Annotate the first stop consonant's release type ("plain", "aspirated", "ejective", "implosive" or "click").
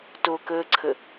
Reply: plain